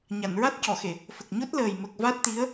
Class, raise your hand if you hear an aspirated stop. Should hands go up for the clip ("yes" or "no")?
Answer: no